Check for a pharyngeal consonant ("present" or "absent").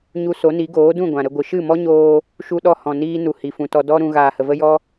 absent